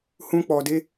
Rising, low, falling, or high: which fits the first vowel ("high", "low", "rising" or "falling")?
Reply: high